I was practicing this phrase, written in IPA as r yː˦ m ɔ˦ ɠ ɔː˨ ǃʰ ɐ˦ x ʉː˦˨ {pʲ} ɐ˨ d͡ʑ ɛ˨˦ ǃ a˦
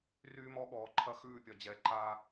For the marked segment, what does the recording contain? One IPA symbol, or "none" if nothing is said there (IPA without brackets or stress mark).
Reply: pʲ